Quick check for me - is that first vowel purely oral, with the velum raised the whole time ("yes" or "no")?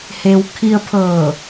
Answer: yes